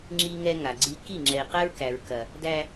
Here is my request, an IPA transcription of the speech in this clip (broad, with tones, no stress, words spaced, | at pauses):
ŋ͡ǁi˦ŋɛ˦ ŋa˨ɡ͡ǀi˦ ki˦˨ŋ͡ǁɛ˨i̯qɛ˦ɹ kæ˨ɹkɐ˨ | dæ˦